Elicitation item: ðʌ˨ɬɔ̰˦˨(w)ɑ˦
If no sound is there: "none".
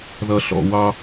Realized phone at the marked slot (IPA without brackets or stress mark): w